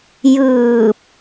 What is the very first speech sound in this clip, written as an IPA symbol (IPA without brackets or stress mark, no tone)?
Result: j